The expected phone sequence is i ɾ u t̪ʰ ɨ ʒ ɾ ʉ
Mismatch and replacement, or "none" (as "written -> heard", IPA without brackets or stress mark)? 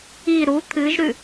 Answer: none